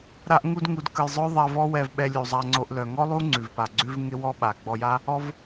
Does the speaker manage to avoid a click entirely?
no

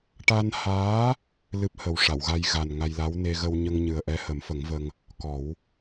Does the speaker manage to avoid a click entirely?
yes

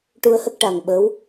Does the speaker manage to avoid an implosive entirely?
no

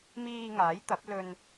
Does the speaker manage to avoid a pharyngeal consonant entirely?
yes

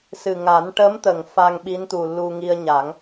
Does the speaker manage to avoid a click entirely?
yes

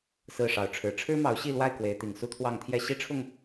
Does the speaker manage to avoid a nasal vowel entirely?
yes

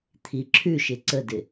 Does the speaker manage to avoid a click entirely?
no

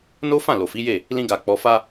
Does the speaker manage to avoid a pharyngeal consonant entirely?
yes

